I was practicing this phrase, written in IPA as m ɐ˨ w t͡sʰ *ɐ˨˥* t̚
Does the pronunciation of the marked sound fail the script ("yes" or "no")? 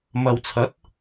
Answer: no